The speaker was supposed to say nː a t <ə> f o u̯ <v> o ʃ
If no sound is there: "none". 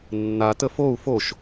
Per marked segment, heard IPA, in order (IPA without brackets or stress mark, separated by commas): ə, f